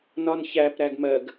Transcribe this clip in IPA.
nɒnçæp ɾæɡmɜɡ

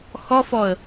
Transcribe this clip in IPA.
xɔfɔə̯

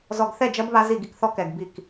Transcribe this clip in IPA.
zɔ˨ɡθɛ˦˨d͡ʒɐ˦b βa˦zi˦˨ɡi˦kθɔ˦ kɛ˨ɡbi˦˨k

